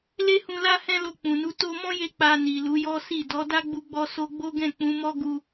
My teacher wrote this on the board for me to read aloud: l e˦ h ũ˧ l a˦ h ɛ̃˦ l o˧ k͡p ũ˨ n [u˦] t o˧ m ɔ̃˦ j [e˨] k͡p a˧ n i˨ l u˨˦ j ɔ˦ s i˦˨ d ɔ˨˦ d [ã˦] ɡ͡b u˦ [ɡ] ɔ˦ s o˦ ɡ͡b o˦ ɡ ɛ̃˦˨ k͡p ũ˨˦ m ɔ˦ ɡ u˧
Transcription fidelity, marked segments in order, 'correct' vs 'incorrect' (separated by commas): incorrect, incorrect, incorrect, incorrect